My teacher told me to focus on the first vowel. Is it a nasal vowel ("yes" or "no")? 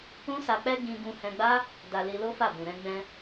yes